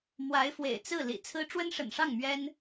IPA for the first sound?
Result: m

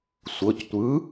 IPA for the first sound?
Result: sʷ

